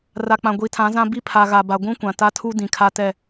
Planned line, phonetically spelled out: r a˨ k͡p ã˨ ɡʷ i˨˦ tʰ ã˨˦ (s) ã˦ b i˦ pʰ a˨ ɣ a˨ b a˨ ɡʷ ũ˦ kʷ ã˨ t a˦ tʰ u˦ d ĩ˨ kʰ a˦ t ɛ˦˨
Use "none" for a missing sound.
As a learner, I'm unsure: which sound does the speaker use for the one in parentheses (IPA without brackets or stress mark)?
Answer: z